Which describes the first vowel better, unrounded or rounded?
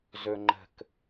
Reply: rounded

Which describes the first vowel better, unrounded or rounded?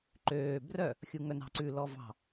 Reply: rounded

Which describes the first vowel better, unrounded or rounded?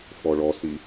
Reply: rounded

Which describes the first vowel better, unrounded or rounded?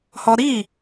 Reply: rounded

